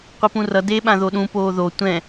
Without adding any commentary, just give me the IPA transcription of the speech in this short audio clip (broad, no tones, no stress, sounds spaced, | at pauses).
qʷ i p ũ r ʌ d eː ɓ ã ð o ɗ ũ p oː ð o tʷ ɛ̃